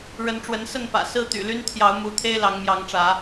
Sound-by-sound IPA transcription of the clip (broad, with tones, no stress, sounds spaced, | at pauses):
ɻ ə˨˦ n ʈ͡ʂ w ə˨˦ n s ə˥˨ n p ä̰˨˩ s ɹ̩˦ t̪ y̰˨˩ l y˦ n t̪ʰ j ɑ˨˦ ʊ̯ m u˨˦ t̪ʰ e˦ ɪ̯ l ɑ˨˦ ŋ m j ɑ˨˦ ŋ ʈ͡ʂ ä˨˦